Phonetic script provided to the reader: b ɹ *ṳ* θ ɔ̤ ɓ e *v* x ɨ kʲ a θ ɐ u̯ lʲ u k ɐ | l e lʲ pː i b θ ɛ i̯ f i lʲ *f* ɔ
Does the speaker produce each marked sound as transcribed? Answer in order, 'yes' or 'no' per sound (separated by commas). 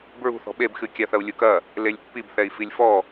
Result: yes, no, yes